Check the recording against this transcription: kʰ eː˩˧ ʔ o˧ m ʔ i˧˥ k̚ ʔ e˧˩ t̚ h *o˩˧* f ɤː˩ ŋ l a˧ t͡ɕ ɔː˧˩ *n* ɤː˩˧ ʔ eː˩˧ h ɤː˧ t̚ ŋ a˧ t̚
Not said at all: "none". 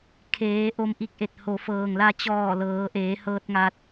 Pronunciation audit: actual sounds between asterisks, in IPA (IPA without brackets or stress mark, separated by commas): o˩˧, l